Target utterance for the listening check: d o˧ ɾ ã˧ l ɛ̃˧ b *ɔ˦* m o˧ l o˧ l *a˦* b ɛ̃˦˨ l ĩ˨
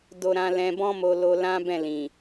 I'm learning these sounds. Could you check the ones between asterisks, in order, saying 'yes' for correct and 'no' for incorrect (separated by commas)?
no, no